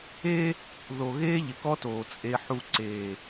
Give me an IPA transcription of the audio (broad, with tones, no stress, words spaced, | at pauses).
eː˦ | ðo˨ ɣeː˦ʎɪ˨kɔ˦toː˨ t͡sʼe˨ħu˨ ǀeː˨